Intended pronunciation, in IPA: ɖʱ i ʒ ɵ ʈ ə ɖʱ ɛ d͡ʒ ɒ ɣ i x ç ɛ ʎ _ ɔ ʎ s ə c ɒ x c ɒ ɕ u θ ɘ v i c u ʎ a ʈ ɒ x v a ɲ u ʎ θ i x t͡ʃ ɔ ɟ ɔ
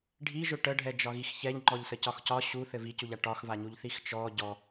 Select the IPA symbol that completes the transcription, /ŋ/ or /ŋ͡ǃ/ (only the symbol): ŋ͡ǃ